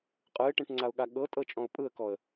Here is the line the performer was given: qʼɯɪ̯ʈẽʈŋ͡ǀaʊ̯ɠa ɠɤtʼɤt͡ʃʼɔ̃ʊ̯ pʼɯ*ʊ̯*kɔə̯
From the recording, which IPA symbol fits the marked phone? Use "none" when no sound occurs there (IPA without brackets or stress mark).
ə̯